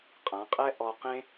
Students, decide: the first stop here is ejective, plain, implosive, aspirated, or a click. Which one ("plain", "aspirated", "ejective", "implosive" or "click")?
ejective